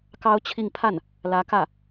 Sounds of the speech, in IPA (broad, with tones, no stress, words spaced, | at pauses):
kɑ˥ʊ̯t͡ɕʰi˥˧ŋ pʰa˥˩n | lä˧˥kä˥˩